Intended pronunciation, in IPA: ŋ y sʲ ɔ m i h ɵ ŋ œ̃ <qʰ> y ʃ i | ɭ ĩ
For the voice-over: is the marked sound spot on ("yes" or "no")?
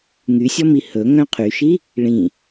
yes